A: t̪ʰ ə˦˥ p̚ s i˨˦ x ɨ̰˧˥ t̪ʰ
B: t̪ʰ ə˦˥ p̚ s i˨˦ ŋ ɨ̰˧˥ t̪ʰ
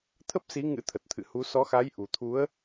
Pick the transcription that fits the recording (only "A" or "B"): B